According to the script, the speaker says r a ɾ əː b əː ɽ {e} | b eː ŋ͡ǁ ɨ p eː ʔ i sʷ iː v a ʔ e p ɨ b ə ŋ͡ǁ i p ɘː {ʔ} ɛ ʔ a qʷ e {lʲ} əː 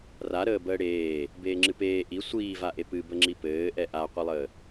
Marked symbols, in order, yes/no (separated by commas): no, yes, no